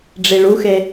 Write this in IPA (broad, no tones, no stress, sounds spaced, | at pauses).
ɖ͡ʐ i ɭ u x e